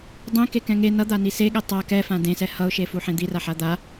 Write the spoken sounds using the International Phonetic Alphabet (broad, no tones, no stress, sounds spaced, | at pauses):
dˤ ẽ k e k ɛ̃ ŋ e n ʌ d̪ a n i s e ɠ ɛ tˤ a k ɛ f ã d ẽ s ɛ h ʌ ʊ̯ ʃ e f u ħ ẽ d̪ i r a ħ a d̪ a